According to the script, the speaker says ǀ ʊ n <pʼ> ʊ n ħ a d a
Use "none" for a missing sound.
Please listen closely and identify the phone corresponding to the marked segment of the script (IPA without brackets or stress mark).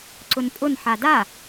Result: pʼ